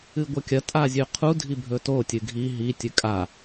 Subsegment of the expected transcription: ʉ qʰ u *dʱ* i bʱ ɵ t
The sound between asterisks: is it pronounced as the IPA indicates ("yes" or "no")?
yes